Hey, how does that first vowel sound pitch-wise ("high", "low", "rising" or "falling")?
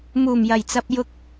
low